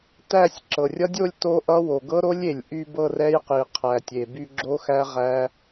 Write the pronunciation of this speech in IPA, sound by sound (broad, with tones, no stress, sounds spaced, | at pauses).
t æ˥˧ sʲ ǁ ɤ˩ rʲ ʌ˦˥ dʲ o˥˧ lʲ t o˦˥ ʔ ʌ˦˥ w o˩ ɡ ɤ˦˥ ɾ o˦˥ lʲ e˩ lʲ ʔ y˥˧ b ɤ˥˧ r ɛ˦˥ j q i˩ qʰ æ˩ tʲ e˩ b y˥˧ ɡ͡ǁ o˦˥ x æ˦˥ ʁ æ˦˥